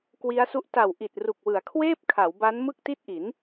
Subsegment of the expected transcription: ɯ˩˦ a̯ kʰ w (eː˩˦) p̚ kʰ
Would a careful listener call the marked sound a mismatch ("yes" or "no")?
yes